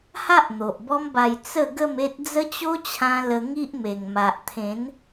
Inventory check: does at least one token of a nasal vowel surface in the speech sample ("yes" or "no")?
yes